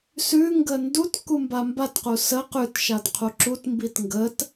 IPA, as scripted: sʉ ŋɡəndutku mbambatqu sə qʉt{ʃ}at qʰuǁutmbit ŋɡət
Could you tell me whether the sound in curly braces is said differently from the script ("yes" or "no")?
no